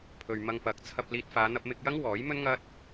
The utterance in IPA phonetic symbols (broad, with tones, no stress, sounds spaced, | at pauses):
pʰ ɵ˨ ɥ m ɐ˧ ŋ p ɐ˨˥ k̚ t͡sʰ ɐ˧ p̚ l iː˧ t̚ f aː˨˧ n̪ ɐ˧ p̚ m ɪ˧ k̚ j ɐ˥ ŋ w ɔː˨˥ j m ɵ˥ n ŋ ɐ˥ t̚